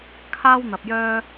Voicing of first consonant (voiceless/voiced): voiceless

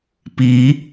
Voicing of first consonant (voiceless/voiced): voiceless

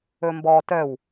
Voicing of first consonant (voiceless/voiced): voiced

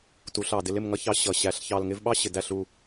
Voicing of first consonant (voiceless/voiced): voiceless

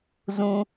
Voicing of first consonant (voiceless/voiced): voiced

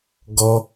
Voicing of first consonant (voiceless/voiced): voiced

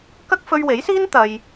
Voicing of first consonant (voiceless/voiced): voiceless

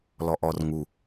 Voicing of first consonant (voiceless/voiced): voiced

